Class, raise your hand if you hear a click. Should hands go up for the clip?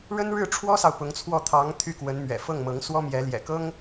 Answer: no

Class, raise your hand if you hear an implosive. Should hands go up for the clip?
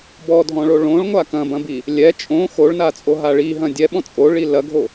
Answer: yes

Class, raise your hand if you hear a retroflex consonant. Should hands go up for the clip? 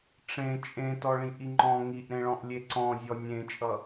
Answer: yes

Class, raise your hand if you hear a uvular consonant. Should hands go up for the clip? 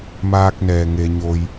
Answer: no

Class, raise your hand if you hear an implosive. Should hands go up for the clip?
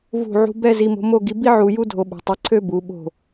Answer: yes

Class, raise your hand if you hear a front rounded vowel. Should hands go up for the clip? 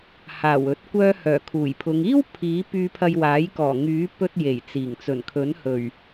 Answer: yes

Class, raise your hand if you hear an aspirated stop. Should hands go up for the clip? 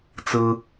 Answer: no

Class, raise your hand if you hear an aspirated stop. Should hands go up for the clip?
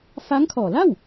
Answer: yes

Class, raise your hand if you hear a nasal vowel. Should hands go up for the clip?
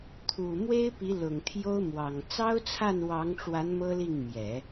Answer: no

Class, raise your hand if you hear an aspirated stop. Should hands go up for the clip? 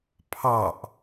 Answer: yes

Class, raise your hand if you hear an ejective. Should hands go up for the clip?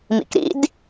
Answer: no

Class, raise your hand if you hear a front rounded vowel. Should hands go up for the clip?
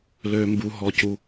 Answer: yes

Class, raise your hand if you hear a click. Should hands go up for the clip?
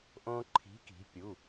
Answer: yes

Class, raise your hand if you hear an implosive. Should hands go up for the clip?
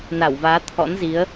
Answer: no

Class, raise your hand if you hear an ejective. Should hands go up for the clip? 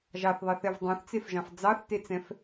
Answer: no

